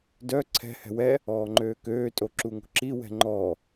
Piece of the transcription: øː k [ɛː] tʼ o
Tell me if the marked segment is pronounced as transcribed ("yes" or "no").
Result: no